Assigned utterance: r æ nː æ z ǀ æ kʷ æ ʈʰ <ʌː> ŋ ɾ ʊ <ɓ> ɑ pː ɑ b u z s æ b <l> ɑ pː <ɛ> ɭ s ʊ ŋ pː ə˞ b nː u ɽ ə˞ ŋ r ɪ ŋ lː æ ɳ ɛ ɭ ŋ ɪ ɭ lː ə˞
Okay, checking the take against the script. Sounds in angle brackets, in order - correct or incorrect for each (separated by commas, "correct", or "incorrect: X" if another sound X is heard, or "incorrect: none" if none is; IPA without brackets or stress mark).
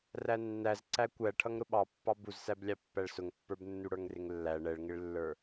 incorrect: ʌ, correct, incorrect: lʲ, incorrect: æ